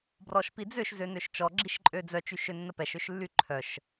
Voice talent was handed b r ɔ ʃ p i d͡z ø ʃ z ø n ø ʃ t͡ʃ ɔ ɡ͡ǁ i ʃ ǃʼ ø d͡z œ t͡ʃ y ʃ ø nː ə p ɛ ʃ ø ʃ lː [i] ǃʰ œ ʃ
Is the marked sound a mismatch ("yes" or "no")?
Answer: yes